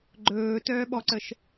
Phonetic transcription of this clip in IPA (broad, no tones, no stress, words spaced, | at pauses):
ɡ͡ǃɵːtœːɓɔǀəʃ